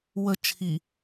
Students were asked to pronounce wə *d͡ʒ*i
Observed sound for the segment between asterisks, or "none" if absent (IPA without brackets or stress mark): t͡ʃʰ